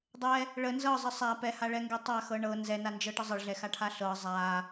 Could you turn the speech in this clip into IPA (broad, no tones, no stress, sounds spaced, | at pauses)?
dˤ ɛ | ɭ ə n z ɤ zˤ ə sˤ a p ɛ h a ɭ ɛ ŋ ɡ ɛ tˤ a x ɤ ɳ ɤ n z ɛ n a n d͡ʒ ɤ ʈ ə zˤ ə ɭ ɮ ɛ x a ʈʰ a ɬ ɤ zˤ a